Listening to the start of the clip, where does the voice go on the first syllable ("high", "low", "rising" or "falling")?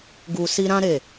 low